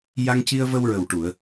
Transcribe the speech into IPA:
j a˧ ŋ c i˧ ə̯ v ə˧ w ɹ ə˨˩ w ʈ u˨˩˨ ə̯

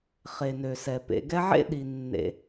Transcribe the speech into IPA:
χ e˩ n ø˩ s ɛ˩ p ḛ˨ ɡ ɛ˦ ʕ ḛ˥ ɗ i˨ nː ḛ˨

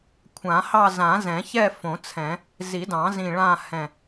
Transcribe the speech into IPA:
kʷʰ ã˨˩˦ h ɑ˥˧ z ã˨˩˦ z ɛ̃˨˩˦ ç ɛ˥˧ f õ˨˩˦ t͡sʰ ɛ̃˨˩˦ | z i˨˩˦ d ɑ̃˨˩˦ z ĩ˧˩ ɭ ã˥˧ h ɛ̃˧˩

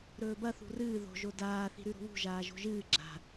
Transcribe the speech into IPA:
ɾ ɵː b ɐ θ ṳ r ɨː ð o̤ ʒ o d aː θ i̤ ɾ ʉ ɾ o̤ β ṳ ʒ aː ʒ o̤ ʒ ɨː ɡ͡ǁ a̤

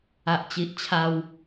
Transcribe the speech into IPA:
a˨ ʔ t͡ɕ i˨ ʔ t͡ɕʰ a˧ w

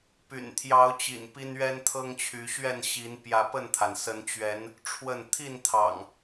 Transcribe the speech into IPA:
p y̰˨˩ n t̪ʰ j ɑ˨˦ ʊ̯ t͡ɕ ḭ˨˩ n p i˦ n ɥ ɛ˦ n t̪ʰ ɤ˦ ŋ t͡ɕʰ y˨˦ ɕ ɥ ɛ˥˨ n ɕ i˨˦ n p j ä˨˦ p ə˥˨ n t̪ʰ a˩ n s ə˨˦ n t͡ɕ ɥ ɛ˨˦ n | ʈ͡ʂʰ w ə˥˨ n t̪ʰ i˥˨ n t̪ʰ ɑ̰˨˩ ŋ

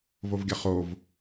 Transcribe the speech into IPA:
v o v ɡʲ ʌ χ o v

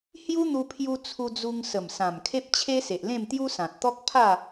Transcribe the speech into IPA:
h j u˦ n̪ u˧ pʰ j u˧ t͡sʰ u˧ d͡z u˧ ŋ s ə˨˩ m s ã˨˩ m kʰ e˦ p̚ t͡ɕʰ e˦ s e˨ ʔ l ẽ˥˧ m t̪ j u˦ s ã˨ t̚ t̪ ɔ˦ k̚ pʰ a˥˧

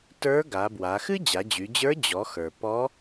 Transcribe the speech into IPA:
t ə˞˧˥ ɡ a˩˧ b w a˩˧ x ɨ˥ d͡ʑ a˩˧ d͡ʑ y˩˧ d͡ʑ ə˞˧˥ d͡ʑ ɔ˩˧ x ə˞˩ p ɔ˧˥

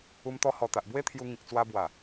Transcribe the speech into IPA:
u˧ m t̪ ɔ˧ h ɔ˨˩ t̪ a˨ ʔ b w e˦ t̪ʰ j u˧ ŋ ĩ˨ k̚ t͡s w a˧ b w a˨˩

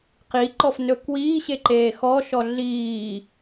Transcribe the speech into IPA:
q i ǃ ɔ f n ɵ k w iː ɕ e ǃ eː x ɔ ʃ ɔ ɮ iː

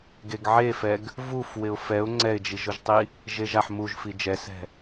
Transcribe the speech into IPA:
ɡ e ɡ ʕ e f ɛ ɡ | v u f w ɪ ʊ̯ f ɛ ʊ̯ ŋ͡ǀ ɛ ɪ̯ d͡ʒ i ʒ ʊ ʒ tˤ i | ʒ e ʒ a ħ m u ʒ f i d͡ʒ ɛ s ɛ̤

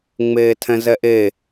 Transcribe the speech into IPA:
ŋ͡m eː tʰ ɛ̃ z ɛ ʔ e

